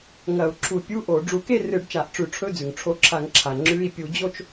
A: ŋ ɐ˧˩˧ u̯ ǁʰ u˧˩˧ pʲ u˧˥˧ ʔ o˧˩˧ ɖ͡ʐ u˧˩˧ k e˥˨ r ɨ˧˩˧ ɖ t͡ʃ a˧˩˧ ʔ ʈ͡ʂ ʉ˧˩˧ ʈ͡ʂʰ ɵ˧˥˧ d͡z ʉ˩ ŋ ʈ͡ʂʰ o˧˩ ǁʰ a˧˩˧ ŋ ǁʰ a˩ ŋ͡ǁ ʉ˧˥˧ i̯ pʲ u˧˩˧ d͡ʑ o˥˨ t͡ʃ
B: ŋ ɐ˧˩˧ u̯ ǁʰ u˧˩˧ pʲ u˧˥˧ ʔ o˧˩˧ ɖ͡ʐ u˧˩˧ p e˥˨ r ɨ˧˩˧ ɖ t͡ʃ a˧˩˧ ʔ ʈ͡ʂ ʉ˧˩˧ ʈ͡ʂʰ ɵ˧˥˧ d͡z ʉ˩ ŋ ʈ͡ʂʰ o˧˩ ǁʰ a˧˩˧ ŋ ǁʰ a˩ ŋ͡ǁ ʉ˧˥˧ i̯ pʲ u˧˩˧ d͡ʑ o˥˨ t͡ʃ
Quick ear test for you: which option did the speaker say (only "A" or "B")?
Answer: A